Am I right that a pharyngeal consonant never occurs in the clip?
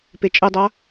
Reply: yes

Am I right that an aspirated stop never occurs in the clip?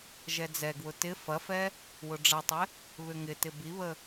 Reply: yes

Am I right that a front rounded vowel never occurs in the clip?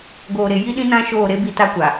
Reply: yes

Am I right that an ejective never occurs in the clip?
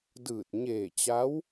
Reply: yes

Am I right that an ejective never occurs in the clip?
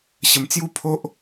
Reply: yes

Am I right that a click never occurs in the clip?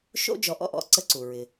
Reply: no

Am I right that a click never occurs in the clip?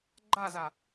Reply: no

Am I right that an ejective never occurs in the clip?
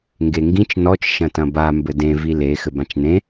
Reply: yes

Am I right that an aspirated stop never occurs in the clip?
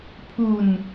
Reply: no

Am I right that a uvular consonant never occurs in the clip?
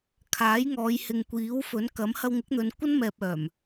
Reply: yes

